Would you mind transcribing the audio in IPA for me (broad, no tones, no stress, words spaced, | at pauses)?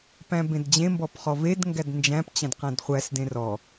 pæ̃bẽdd͡ʑẽmbɔp χɔvedŋɡæd nd͡ʒæ̃pt͡ɕæ̃d qæ̃dχʷæsdẽ rɔ